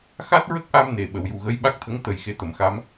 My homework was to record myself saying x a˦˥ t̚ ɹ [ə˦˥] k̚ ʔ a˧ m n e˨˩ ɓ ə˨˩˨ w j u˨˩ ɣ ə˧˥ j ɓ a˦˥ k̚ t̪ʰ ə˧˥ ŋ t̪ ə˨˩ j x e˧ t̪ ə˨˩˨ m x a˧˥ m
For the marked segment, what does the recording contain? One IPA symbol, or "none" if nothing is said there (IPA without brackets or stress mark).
ə˦˥